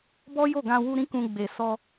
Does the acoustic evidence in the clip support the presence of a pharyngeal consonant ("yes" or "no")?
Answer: no